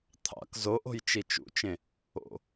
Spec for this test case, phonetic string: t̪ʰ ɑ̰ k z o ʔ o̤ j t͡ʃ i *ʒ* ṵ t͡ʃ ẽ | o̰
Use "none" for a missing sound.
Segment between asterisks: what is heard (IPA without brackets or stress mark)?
t͡ʃ